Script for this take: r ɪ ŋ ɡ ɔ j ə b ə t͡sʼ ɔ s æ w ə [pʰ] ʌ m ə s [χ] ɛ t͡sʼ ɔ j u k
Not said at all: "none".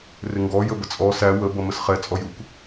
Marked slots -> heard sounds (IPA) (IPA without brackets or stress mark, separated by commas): b, χ